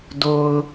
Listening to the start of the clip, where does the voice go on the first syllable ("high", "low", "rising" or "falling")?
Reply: low